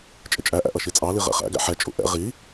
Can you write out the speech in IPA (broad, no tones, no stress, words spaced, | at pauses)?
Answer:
t͡ʃʼɪt͡ʃʼæʔæ̰ ʔʌʃit͡sʼɑli ʁɛ̰χæ̰ɡæ̰ ħɛt͡ʃʼṵ ʔɛ̰ ʁi